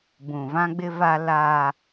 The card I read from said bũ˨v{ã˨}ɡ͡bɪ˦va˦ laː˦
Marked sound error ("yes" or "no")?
yes